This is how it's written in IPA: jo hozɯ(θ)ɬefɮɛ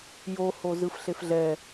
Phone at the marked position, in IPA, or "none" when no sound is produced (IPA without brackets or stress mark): f